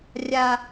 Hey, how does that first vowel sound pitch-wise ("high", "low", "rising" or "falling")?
high